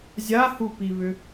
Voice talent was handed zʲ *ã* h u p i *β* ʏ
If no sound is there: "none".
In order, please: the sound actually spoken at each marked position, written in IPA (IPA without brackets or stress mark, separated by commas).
a, β